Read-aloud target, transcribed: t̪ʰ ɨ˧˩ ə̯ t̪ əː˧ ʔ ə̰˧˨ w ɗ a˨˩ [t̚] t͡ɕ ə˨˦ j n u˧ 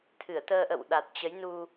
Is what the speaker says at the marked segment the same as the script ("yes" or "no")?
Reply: yes